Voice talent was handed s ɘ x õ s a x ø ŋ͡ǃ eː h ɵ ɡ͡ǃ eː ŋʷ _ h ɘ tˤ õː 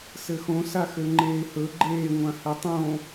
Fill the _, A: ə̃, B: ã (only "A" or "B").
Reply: B